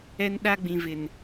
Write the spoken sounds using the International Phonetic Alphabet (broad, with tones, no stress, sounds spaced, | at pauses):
ɛ˦ n ɗ a˦ ɡ͡b ĩ˨ v ɪ˨ n